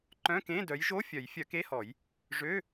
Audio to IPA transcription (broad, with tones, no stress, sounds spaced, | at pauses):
ǃ œ̃˧˥˧ k ẽ˧˥˧ d œ˨˦ j ʒ o˧˥˧ fʲ œ˨˩˦ j fʲ œ˨˦ k e˧˥˧ h ɔ˨˩˦ j | ʐ ø˧˥˧